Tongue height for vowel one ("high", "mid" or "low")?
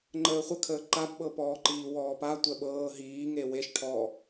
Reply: mid